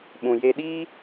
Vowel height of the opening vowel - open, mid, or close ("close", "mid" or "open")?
close